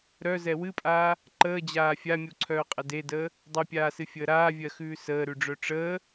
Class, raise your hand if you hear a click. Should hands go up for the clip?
yes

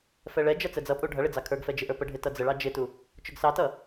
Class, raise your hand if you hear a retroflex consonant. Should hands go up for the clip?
yes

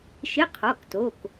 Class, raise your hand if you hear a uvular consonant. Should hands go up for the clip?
yes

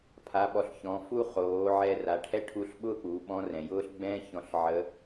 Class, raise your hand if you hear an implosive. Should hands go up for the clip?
yes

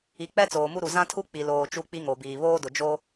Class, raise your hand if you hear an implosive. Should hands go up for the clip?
no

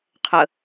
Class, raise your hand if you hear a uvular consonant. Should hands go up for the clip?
yes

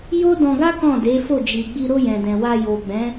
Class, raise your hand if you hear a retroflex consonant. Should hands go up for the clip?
no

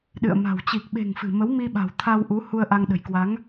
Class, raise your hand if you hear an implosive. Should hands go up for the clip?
yes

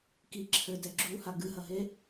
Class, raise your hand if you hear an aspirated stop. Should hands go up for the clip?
yes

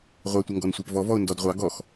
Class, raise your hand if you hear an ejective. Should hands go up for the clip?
no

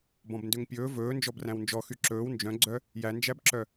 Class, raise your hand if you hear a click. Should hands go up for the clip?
yes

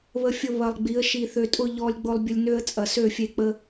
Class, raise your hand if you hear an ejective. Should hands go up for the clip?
yes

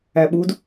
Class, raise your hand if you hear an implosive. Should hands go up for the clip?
yes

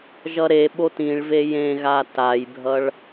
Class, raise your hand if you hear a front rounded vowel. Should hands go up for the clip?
no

